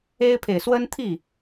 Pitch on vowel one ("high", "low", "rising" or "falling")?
high